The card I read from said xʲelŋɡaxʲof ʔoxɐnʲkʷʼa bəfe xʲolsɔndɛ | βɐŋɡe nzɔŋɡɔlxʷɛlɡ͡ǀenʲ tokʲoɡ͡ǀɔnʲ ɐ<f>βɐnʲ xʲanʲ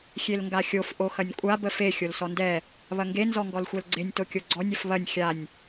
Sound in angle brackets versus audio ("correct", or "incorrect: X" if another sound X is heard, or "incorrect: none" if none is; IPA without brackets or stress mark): correct